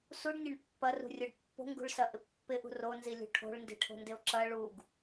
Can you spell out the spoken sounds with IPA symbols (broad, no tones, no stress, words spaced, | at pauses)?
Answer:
suɖnʲɐɳ pːɐrṳrʲoɖ pːo̤ŋɡṳɭsɐʔɪ pːɪʔṳ ronzilʲṳ ʈʰo̤ɭndi̤ʈʰo̤ndɪo̯ ǁɐ ɭuɡ